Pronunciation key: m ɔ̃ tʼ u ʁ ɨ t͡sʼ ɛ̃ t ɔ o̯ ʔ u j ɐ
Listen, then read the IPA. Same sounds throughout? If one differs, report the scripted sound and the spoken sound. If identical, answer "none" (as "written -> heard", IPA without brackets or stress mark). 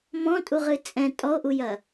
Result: t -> tʼ